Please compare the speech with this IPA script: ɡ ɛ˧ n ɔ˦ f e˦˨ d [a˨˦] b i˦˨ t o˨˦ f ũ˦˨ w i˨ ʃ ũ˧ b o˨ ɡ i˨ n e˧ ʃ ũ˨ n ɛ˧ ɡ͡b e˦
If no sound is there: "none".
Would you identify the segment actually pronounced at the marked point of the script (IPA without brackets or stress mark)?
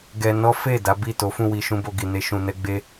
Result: a˨˦